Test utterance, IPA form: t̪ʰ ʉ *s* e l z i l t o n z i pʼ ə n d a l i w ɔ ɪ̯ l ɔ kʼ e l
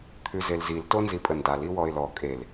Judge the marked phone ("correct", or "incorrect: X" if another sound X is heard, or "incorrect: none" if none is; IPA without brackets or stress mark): incorrect: z